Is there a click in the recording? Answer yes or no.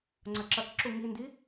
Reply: yes